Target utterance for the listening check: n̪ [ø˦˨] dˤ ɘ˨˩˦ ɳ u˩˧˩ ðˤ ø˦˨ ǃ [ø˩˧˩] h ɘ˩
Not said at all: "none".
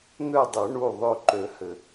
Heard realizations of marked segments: ø˦˨, ø˨˩˦

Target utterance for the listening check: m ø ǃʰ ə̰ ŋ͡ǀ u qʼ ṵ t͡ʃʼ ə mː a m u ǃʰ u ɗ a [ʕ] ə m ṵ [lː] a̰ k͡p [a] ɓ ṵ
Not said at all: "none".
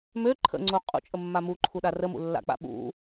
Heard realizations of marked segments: r, lː, a̰

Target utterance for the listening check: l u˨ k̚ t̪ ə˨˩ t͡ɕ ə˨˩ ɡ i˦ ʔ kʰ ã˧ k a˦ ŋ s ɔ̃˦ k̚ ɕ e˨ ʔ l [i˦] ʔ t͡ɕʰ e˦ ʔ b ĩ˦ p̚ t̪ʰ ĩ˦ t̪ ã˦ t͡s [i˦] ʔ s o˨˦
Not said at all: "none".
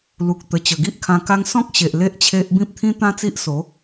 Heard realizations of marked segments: e˦, i˦

